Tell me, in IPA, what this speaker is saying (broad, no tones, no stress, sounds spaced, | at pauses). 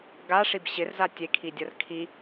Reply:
ɡ a ʂ i b ɕ ɪ r z a tʲ e kʰ i dʲ ɐ r kʰ i